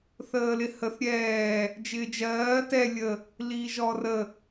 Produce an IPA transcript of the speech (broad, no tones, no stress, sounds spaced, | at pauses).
θ əː l ɪ h ə θ ɾʲ ɛː | d͡ʒ ɪː d͡ʒ ɜː t ɛ lʲ ə | l iː ʒ ɔː r ə